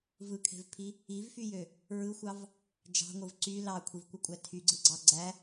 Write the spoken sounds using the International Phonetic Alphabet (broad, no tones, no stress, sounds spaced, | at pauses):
v ɯ kʰ e̤ v pʰ i | i v f y j ø | ɹ ɯ xʷ ɑ v | d͡ʒ ɑ̤ ŋʷ ɯ v ǀ y l ɑ kʷʰ i v kʷ ɯ kʷʼ æ tʰ y ɡ͡ǀ ɯ ɡ͡ǀ ɑ ɡ͡ǀ æ